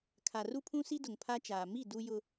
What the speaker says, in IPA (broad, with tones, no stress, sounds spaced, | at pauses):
kʰ a˨ r u˦ pʰ ũ˦ s i˦ d ʊ˨ ŋ pʰ a˦ t͡ʃ aː˨ m i˦˨ d u˦ j ʊ˦